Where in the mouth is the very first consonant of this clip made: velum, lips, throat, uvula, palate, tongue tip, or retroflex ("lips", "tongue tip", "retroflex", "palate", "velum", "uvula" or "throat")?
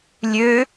tongue tip